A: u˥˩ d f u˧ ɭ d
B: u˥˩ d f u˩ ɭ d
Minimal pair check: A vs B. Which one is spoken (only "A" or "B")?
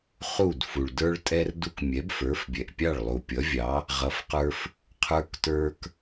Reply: B